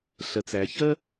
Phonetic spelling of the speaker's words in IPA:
ɬɜ˩t͡sæ˩çɜ˥

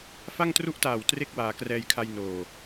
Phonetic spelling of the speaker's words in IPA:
fa˥˩ŋtru˥˩ʔtaː˨˩w tre˥˩k̚waː˩˦krɛː˧jkʰa˧j noː˨˩

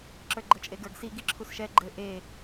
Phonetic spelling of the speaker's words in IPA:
ǁə˞ɡ͡ǃɤt͡ʃʼeɡə˞ɡ si ɡiǁʰusʃɛ ɡ͡ǃɘ ʔe

